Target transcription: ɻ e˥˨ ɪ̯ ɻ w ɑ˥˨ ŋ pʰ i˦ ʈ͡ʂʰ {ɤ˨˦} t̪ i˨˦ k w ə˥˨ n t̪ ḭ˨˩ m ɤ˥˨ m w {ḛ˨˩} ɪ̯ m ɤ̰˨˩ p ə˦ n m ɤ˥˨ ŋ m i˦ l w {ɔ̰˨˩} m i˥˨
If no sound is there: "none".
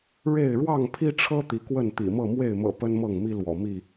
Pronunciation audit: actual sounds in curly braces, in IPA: ɤ˦, e˥˨, ɔ̰˨˩

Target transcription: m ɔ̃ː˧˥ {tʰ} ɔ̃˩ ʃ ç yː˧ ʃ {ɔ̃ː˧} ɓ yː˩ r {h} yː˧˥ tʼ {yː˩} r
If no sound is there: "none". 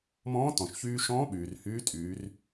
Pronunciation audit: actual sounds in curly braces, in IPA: t, ɔ̃ː˧˥, h, yː˩˧

